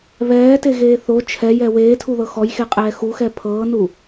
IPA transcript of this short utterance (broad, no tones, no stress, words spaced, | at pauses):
βɛːteɣeː θo t͡ʃʰɛjɛ weːtʰuðɤ xɔjxeqʼɛː xuxɛ pʰɤːnu